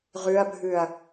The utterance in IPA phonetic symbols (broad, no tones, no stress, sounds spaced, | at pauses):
ʁ ʉ ɐ̯ bʱ ʉ ɐ̯